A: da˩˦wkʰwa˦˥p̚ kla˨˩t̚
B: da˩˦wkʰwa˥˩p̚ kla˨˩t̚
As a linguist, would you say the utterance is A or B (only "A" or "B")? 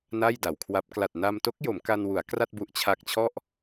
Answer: A